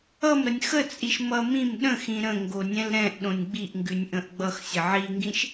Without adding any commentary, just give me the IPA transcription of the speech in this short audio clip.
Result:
ʌ m ɾ ə nʲ x ə t͡sʼ i ʃ m ʌ m ĩ m ɗ ə̃ x ĩ ɾ ə̃ ŋ ɡ o nʲ ɛ̃ l ɾ ɛ̃ ʔ ɗ õ nʲ ɡ͡b i ʔ ŋ ɡ ʉ nʲ ʔ ə̃ ʔ ɡ͡b ʌ x sʲ ə ʕ i ŋ ɡ ĩ ʃ

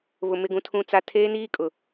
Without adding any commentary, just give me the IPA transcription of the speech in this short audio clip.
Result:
β ʊ˨ m ɪ˦˨ ɡ ũ˦ tʰ ũ˦ t͡s a˦ tʰ eː˦ n iː˦ kʼ ʊ˨

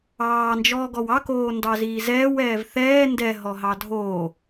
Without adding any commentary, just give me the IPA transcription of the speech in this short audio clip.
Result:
ɑː n d͡ʒ ɔː ɡ ɔ w ɑ k oː n d ɑ z iː z ɛː w ɛː v θ ɛː n d ɛ ɦ ɔ ɦ ɑ dʱ oː

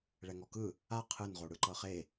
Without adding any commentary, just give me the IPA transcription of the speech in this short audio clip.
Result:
ɭ ɛ ŋ ɔ k ɯ | a qʰ ɯ n ʁ o ɽ ɯ ǃ ɤ χ e

